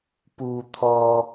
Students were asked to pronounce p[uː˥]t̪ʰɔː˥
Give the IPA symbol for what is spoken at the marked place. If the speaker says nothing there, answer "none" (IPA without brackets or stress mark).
uː˥